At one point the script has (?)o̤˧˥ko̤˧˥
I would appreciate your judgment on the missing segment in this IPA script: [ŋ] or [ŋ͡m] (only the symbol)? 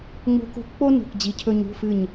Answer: ŋ͡m